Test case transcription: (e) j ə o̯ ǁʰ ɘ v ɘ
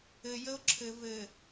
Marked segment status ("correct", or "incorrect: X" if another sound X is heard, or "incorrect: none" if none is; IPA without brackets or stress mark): incorrect: ɘ